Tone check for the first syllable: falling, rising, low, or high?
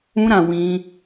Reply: high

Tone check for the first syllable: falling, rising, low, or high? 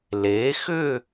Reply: rising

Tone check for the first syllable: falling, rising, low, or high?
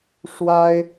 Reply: high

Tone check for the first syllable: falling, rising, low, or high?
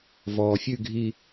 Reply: low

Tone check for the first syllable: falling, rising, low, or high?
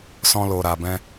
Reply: high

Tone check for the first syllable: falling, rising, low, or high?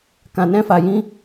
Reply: low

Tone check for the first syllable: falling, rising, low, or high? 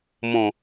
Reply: low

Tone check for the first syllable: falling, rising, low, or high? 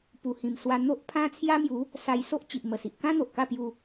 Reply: low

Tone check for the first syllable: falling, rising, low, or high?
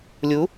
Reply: rising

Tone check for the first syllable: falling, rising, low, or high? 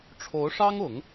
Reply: rising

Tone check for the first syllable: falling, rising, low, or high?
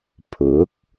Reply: rising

